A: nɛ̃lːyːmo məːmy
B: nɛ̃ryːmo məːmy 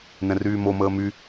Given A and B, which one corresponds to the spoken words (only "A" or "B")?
B